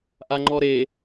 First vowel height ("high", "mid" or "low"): low